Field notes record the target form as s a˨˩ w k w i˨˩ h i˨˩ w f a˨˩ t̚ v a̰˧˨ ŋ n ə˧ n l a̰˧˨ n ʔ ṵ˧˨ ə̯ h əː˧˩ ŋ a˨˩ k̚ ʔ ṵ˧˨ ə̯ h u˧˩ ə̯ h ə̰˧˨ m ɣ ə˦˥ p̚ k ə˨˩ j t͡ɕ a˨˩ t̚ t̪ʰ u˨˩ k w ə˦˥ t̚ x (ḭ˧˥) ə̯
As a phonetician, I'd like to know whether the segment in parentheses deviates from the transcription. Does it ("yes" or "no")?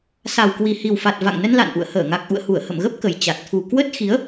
yes